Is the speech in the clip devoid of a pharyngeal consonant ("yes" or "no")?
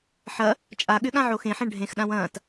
no